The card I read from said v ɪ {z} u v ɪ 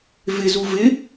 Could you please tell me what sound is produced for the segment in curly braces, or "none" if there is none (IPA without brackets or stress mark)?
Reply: z